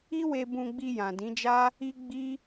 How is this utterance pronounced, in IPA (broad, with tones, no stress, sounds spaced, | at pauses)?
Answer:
i˦ w e˧ b ũ˧ ɡ͡b i˧ j ã˨ d ĩ˨˦ d͡ʒ a˦ | i˦ ɡ͡b i˦